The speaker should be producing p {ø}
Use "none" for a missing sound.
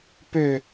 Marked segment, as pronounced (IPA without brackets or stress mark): ø